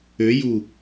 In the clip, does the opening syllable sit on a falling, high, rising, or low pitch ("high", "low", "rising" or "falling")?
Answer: rising